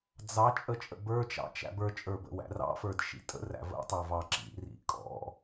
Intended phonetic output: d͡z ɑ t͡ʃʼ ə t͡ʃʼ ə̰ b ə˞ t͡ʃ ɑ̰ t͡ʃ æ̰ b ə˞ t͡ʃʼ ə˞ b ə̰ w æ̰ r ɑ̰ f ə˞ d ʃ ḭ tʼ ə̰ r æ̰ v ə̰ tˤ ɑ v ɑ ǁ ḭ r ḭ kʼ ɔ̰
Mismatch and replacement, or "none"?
none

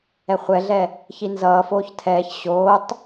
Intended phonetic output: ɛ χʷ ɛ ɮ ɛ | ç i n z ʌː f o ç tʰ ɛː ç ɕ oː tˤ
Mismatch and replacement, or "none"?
o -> oː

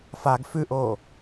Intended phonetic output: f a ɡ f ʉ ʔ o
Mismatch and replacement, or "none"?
none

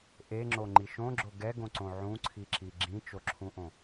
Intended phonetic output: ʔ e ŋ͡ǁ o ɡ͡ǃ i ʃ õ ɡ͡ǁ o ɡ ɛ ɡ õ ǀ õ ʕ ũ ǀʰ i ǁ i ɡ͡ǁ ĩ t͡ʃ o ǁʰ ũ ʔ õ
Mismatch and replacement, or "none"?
ɡ͡ǃ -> ŋ͡ǃ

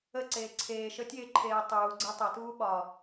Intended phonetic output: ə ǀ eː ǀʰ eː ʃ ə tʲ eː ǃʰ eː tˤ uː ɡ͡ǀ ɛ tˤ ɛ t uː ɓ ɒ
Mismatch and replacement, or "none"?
none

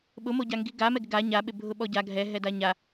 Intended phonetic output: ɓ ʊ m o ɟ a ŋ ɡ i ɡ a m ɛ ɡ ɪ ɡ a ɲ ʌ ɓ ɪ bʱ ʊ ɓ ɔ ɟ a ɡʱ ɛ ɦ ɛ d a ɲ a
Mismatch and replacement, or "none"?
ʌ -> a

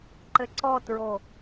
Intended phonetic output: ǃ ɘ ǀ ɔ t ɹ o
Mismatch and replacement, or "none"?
none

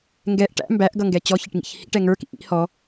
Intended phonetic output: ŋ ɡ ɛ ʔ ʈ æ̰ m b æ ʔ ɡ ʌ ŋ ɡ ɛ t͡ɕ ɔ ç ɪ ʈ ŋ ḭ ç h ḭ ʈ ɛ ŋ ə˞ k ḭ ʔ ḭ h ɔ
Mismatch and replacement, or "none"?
none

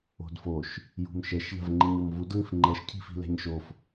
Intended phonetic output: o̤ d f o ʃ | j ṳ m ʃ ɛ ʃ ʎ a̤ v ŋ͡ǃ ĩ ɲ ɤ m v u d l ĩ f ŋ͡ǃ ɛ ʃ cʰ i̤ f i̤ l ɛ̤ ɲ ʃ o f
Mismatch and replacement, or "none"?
none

